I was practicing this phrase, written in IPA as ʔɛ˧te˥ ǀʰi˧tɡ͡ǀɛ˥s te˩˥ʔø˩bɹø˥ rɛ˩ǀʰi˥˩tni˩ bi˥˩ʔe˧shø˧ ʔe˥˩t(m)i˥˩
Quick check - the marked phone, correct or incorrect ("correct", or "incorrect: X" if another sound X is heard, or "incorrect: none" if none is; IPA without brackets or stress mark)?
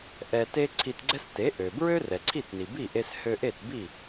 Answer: incorrect: b